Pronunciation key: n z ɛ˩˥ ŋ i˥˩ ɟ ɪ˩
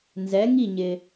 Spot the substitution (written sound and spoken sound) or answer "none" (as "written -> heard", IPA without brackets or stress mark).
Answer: ɟ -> ɲ